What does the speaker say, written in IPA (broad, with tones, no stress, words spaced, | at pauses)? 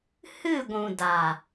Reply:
hɨ˦˨ɡʷũ˨ da˨